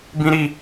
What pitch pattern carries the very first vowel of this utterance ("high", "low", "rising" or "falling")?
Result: high